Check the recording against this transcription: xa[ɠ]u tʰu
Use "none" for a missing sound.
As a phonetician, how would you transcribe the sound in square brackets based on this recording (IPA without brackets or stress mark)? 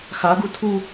ɡ